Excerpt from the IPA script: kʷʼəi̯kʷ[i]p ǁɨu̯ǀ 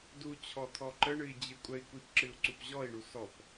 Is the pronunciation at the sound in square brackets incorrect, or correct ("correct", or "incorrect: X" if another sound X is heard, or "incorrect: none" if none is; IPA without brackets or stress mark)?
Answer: correct